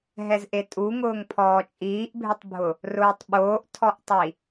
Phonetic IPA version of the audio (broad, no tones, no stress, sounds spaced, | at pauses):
ɦ ɛ z ʔ e tʼ u ŋ ʊː ŋ pʰ ɔː t͡ʃʼ iː ʔ bʱ ɪ tˤ bʱ ʊ | r ʊː tˤ ɓ oː ʔ tʰ ɔ ʔ tˤ i